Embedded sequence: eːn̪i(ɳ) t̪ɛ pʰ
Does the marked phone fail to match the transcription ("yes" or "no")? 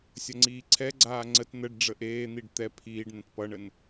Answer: yes